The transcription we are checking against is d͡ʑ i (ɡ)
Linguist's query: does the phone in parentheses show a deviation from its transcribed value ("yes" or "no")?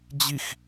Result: yes